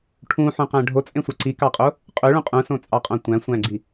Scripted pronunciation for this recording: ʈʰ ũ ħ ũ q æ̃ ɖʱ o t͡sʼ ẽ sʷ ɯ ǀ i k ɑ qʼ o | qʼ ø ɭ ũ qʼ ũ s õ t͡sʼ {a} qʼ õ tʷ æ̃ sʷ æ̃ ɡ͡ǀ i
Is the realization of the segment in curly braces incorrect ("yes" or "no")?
yes